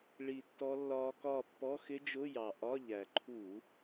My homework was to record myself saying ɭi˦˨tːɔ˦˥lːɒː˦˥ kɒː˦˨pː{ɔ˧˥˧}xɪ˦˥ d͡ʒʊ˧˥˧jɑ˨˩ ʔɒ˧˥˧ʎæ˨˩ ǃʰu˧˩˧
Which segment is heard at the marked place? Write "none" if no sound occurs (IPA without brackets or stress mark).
ɔ˧˥˧